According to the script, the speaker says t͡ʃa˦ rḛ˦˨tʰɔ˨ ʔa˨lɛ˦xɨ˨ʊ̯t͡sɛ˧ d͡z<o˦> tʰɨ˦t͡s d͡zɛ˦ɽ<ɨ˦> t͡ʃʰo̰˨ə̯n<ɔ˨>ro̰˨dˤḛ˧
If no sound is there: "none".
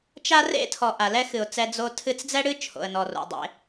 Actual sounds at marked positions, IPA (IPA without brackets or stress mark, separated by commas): o˦, ɨ˦, ɔ˨